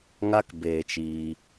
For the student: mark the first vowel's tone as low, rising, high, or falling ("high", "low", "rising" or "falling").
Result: high